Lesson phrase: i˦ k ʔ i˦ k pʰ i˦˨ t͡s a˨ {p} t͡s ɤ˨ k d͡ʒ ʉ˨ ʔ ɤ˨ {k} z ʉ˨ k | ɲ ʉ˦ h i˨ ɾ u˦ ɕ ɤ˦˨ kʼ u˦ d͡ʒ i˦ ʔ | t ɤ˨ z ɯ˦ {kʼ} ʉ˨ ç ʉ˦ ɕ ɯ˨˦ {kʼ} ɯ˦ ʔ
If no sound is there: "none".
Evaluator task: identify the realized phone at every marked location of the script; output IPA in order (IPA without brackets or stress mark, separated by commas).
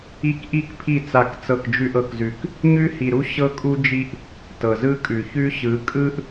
k, k, kʼ, kʼ